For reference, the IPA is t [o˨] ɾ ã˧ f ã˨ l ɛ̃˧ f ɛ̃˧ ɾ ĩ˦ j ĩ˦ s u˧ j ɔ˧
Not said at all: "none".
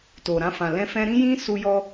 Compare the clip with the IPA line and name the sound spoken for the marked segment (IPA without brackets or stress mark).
o˨